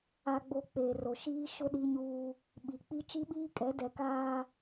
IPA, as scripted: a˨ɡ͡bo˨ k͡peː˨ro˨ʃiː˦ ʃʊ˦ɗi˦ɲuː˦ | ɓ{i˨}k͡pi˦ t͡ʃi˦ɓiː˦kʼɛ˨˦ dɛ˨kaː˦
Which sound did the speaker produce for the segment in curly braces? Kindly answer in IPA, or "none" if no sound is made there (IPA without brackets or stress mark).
i˨